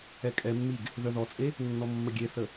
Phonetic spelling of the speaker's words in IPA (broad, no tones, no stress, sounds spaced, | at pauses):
ɛ kʼ ɛ mː i ɡ | ð œ ð ɔ t͡sʼ e | nː ɔ mː ə ɡʲ e θ ə